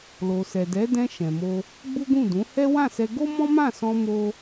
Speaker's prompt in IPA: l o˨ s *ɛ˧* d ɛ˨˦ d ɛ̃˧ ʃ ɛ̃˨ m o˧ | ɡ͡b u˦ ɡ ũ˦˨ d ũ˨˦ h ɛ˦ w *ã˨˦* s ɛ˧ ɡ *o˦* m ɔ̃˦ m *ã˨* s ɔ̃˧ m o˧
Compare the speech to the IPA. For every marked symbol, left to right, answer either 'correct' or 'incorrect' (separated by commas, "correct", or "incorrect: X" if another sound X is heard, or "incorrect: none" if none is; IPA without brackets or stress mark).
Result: incorrect: ɛ˨, incorrect: ã˦˨, correct, incorrect: ã˦˨